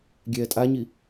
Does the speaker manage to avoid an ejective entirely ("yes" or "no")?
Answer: no